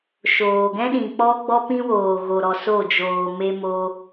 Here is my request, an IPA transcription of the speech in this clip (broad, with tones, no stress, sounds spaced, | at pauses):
ʃ oː˨ ɡ ɛ̃˦ ɗ ĩ˨ k͡p ɔ˦ ɡ͡b ɔ˦ p ĩ˦ w oː˨ ɣ o˨ ɾ ɔ˨ s o˦˨ d͡ʒ oː˨ m e˧ m o˧